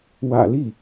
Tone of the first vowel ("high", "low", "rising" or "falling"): low